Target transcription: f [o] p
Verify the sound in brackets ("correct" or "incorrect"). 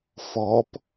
incorrect